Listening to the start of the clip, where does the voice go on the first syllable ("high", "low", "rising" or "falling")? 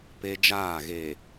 high